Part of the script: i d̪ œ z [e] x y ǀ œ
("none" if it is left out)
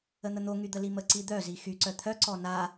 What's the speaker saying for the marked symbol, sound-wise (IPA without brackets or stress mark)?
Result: i